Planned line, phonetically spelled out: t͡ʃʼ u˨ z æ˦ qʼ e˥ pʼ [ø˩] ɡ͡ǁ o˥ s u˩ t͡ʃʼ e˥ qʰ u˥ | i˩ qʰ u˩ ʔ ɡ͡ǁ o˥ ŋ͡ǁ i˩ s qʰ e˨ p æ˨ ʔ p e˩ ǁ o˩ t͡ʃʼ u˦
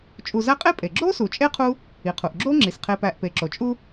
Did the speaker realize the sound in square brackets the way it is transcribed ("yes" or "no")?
no